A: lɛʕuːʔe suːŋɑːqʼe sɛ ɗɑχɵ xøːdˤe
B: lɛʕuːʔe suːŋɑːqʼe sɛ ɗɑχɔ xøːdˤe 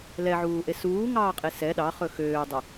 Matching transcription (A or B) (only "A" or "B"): A